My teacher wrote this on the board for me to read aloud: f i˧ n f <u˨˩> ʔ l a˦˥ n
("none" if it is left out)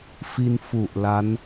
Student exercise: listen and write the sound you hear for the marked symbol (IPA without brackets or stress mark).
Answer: u˨˩